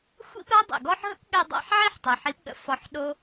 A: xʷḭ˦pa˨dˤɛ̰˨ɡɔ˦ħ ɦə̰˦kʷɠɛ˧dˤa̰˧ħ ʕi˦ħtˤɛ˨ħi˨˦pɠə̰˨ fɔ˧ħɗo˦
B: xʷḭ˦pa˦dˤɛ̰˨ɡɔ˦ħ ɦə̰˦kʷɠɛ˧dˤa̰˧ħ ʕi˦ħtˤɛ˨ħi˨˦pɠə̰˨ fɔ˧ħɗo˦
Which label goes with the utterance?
B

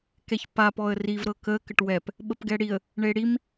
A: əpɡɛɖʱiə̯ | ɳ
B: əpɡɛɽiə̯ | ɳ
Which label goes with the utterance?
B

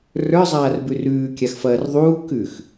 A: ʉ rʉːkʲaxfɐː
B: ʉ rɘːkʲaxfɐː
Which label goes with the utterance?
A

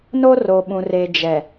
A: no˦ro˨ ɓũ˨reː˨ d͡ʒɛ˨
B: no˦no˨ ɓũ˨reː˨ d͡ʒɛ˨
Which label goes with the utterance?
A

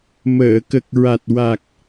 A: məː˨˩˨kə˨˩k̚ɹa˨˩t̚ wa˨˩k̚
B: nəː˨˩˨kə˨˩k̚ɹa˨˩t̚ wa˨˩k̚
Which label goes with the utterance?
A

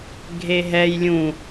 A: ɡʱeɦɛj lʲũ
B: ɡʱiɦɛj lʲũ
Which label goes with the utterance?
A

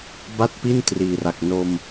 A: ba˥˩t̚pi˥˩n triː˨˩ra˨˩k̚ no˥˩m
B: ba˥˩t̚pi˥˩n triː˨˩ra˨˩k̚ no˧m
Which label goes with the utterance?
B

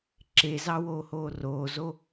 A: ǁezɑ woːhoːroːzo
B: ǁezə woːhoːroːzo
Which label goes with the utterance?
A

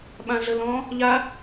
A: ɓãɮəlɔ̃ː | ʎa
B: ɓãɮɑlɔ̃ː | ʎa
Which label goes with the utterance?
A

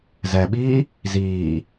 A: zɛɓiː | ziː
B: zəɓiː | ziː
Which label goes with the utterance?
A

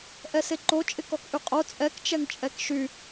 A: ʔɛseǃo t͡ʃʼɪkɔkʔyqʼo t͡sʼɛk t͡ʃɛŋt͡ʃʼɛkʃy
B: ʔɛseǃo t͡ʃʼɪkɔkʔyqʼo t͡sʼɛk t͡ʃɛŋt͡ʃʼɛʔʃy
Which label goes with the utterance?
A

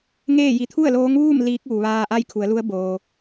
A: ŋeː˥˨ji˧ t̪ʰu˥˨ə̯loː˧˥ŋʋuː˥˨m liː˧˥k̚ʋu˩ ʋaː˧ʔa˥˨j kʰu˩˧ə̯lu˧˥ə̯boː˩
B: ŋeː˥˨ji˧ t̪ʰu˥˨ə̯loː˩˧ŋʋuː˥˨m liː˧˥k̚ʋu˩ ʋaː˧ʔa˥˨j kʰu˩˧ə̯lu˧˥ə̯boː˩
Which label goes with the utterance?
A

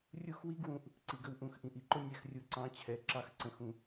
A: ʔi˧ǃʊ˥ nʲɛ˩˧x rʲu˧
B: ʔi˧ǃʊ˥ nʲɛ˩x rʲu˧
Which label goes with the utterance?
A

